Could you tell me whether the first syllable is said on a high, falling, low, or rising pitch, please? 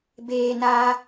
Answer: low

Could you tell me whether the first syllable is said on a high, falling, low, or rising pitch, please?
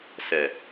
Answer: low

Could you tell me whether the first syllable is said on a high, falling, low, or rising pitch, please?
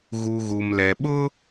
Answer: low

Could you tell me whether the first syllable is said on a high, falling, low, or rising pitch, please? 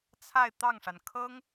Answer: falling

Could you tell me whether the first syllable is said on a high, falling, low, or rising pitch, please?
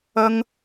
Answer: high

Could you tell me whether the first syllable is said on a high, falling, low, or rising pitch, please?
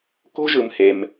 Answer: high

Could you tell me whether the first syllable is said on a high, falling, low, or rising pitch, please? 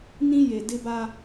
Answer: high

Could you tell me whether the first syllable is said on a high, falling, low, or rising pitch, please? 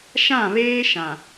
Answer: falling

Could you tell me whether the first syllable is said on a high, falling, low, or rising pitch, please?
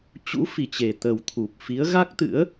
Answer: rising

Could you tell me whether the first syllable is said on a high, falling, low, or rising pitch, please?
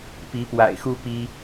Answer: rising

